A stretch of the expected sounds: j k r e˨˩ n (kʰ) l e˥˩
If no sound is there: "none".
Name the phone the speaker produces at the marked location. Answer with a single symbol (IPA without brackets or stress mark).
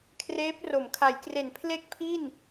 pʰ